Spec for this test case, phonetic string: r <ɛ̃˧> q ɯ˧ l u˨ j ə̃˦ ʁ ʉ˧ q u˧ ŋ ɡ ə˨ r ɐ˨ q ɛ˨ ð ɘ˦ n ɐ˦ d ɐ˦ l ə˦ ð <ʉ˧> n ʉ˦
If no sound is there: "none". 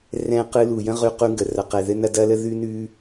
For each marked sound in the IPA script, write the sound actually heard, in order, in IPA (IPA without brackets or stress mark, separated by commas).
ɛ̃˧, ʉ˦